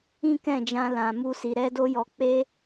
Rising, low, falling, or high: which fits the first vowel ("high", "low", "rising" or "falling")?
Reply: high